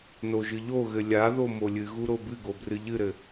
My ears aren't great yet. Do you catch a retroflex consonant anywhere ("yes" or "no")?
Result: no